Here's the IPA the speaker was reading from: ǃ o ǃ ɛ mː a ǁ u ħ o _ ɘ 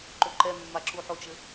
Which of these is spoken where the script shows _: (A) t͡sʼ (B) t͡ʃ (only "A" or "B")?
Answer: B